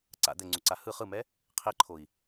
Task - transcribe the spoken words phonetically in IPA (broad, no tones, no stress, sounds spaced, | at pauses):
ǀ a̰ d̪ ɛ ŋ͡ǀ u ǀ a h ɯ χ ɯ m ɛ | qʰ i ǃʰ o i̯